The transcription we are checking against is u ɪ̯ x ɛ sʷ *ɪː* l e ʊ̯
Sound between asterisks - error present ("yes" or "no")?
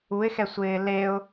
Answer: no